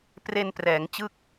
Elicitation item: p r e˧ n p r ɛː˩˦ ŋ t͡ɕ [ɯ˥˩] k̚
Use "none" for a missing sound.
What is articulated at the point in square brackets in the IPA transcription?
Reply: ɯ˥˩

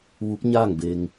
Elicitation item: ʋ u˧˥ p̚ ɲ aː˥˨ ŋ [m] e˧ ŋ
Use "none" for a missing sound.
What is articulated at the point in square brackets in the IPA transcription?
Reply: b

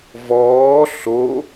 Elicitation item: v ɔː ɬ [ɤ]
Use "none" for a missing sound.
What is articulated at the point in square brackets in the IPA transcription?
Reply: o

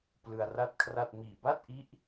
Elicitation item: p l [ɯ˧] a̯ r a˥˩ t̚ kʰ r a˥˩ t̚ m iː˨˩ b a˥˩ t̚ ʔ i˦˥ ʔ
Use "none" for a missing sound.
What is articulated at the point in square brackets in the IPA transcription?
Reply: ɯ˧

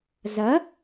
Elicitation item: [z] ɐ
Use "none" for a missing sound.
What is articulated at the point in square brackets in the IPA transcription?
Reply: z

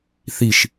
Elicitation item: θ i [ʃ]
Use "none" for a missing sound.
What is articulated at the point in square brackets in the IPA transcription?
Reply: ʃ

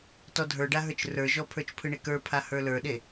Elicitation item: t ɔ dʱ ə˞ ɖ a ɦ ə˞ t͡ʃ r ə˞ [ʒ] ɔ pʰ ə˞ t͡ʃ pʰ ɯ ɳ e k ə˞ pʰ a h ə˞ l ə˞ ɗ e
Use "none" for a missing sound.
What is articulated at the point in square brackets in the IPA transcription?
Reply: ʒ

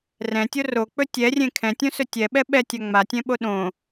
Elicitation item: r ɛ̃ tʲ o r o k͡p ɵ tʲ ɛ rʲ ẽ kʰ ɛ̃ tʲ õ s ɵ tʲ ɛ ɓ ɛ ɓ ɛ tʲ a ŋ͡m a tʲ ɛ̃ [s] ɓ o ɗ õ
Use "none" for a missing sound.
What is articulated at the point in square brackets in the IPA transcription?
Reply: none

